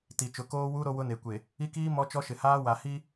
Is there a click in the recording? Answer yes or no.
no